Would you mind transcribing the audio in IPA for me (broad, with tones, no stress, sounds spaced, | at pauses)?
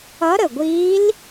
ʌ˧˥ ɾ ə˨˩ ɡʷ iː˧˥ l